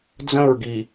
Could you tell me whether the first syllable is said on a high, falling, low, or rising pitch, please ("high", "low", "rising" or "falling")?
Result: falling